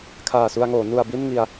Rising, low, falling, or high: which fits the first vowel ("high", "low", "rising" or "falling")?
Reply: low